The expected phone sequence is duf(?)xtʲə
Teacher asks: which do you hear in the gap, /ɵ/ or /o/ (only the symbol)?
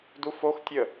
o